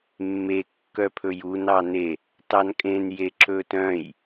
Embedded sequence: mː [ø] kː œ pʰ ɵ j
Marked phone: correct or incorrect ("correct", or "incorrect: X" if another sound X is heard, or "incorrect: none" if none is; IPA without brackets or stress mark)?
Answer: incorrect: e